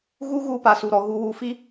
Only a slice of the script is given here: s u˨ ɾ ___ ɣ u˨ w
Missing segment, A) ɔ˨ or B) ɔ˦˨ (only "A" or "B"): A